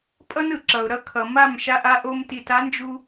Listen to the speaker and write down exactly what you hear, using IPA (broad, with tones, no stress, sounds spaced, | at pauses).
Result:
pʼ ʌ˦ n ɯ˨ ǁ ʌ˨ ʊ̯ ɾ ʌ˧ kʰ ʌ˨ m a˦˨ m ʃ a˧ ʔ a˧ ʔ o˧ m t i˨ t a˨˦ n d͡ʒ u˧